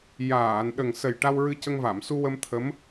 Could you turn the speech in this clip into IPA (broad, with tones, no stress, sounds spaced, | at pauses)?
j aː˨˩˨ n ɗ ə˨˩ ŋ s ə˨˩ j ʈ a˧ w ɹ ɨ˧ c ə˧ ŋ v a˨˩˨ m s u˧ w ə˧ m t̪ʰ ə˧˥ m